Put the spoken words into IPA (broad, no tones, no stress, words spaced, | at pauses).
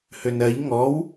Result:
hønɜʎ ŋɔw